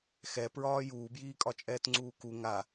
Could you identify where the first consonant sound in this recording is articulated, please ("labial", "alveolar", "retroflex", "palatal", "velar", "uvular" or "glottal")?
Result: velar